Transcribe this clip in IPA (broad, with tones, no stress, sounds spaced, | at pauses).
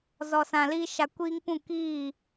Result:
z ɔ˨ s ã˨ l i˧ ʃ a˧ kʷ iː˦ ŋ p ũ˦˨ k iː˦˨